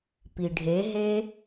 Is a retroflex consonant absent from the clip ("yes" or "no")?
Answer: no